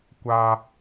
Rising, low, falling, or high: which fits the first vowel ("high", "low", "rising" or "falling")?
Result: high